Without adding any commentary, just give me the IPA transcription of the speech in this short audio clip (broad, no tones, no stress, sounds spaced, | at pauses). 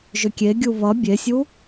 ʒ ʏ kʲ e ɡʲ u β ʌ bʲ e sʲ u